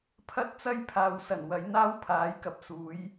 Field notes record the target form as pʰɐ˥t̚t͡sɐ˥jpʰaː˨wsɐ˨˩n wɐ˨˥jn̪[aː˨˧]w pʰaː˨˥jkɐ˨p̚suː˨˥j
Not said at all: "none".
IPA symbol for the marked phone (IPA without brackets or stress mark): aː˥